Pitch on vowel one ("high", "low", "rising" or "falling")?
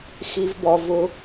low